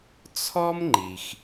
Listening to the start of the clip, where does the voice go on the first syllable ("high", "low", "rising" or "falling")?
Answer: high